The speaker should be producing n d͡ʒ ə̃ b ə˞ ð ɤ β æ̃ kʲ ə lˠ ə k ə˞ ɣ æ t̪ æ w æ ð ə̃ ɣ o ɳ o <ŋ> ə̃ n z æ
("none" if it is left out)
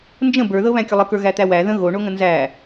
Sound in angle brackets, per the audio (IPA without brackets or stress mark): ŋ